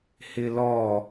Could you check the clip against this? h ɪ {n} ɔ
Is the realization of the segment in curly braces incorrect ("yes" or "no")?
yes